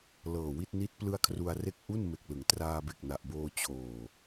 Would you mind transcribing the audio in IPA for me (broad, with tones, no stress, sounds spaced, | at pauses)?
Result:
l ɤː˨˩ w i˥˩ t̚ n i˦˥ t̚ p l ɯ˦˥ a̯ kʰ r u˧ a̯ r e˦˥ k̚ ʔ u˥˩ n m e˨˩ k̚ l ɯ˩˦ ŋ t r aː˧ b e˨˩ k̚ n a˨˩ ʔ b oː˧ t͡ɕʰ oː˨˩